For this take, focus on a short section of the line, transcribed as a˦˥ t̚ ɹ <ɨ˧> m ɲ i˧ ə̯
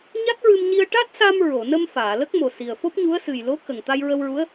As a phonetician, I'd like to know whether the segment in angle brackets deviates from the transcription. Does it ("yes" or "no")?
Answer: no